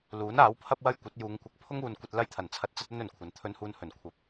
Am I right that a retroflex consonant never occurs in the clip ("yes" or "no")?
yes